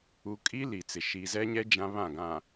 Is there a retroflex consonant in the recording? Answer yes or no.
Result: no